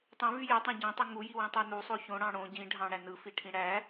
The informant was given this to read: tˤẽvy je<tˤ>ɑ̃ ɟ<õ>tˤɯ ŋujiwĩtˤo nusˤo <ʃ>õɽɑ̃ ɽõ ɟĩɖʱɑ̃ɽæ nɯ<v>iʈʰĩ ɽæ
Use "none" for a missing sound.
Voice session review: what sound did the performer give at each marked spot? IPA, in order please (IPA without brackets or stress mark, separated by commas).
tˤ, õ, ç, f